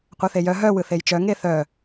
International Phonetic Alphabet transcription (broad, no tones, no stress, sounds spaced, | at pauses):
qʷ œ θ e j œ ɦ œ w ɯ θ e j t͡ʃ œ ŋ e θ œ